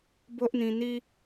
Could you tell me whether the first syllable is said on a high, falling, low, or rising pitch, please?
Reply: high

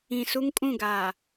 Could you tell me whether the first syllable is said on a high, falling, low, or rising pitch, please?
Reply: low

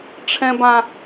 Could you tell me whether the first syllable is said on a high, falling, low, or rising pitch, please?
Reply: high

